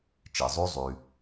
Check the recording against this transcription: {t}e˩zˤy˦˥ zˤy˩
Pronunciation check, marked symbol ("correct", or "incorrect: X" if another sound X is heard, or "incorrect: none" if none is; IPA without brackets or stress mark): incorrect: t͡ʃ